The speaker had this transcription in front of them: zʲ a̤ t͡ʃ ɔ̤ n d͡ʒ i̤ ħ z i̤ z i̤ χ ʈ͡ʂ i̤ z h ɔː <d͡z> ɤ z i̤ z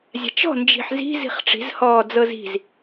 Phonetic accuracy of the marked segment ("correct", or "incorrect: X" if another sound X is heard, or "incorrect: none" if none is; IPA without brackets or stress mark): correct